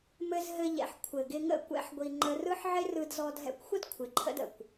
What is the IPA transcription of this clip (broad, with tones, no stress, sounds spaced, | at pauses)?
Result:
m ɘ˧ z ɦ ɘ˧ ʎ ɛ̰˨ ħ kʷʰ ɘ˨ ɡ ɪ˧ ŋ ə̰˦˨ kʷ ɛ̰˦ ħ ɡʷ i˧ ŋ͡ǃ ə˧ r ɯ˦ ħ ʕ ɪ˦ r ɯ˧ d z ɔ˧ d ɦ ɛ̰˧ kʷ xʷ ə˦ d kʷʰ ɪ˨˦ ǃʰ ə̰˦ d ə̰˨ kʷ